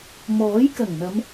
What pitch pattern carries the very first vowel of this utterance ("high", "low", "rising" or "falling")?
rising